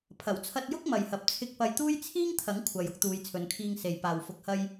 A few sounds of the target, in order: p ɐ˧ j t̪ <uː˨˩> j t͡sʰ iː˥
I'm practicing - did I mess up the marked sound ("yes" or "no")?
yes